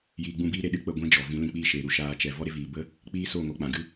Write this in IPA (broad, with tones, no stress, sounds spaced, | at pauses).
j iː˧ ɡ͡b ũ˦˨ b iː˦ ɾ e˨ ɗ ɨ˦ k͡p ə˦˨ ɡʷ ĩ˦ d͡ʒ ɔ˨ v ĩ˨˦ l ĩ˧ k͡p i˦˨ ʃ eː˨ ɾ u˧ ʃ aː˧ t͡ʃ ɛ˨ v ɔ˦ ɾ e˦ v iː˨ b ə˦ | k͡p iː˦ s o˦˨ ŋ o˧ k͡p ã˨ ɡ ɨ˦